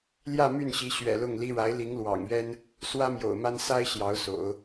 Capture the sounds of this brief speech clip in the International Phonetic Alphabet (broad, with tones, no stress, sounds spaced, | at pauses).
l j ä˥˧ m y˥˩ n ɕ i˧˥ ɕ ɥ ɛ̰˨˩ l ʊ˥˩ ŋ l i˥ ɻ a˧˥ ɪ̯ l i˧˥ ŋ l w ɑ̰˨˩ ŋ ɥ ɛ˥ n | s w ä˥ m j o̰˨˩ ʊ̯ m a˥ n s a˥ ɪ̯ ɕ j ɑ˧˥ ʊ̯ s o̰˨˩˦ ʊ̯